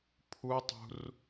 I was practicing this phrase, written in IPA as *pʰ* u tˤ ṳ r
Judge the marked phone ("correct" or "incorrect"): correct